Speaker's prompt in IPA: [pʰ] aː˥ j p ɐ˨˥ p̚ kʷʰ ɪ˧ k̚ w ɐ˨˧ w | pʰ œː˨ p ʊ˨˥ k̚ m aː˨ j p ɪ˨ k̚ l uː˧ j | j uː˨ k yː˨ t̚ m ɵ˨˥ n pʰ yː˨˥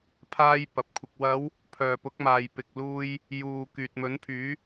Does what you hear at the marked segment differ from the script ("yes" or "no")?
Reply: no